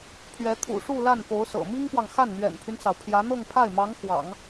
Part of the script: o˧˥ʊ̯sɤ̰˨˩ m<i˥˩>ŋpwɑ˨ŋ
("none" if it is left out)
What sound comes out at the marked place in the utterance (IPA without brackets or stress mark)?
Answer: i˥